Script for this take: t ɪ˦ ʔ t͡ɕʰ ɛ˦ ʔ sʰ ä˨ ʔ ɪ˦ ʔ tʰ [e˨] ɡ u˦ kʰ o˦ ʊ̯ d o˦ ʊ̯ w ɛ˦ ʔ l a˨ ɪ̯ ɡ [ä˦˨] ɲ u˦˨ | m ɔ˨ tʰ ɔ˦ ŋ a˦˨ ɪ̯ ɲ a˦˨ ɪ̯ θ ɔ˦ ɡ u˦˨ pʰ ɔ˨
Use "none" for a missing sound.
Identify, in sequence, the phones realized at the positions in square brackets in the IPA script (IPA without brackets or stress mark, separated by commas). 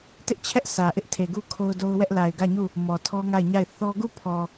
e˨, ä˦˨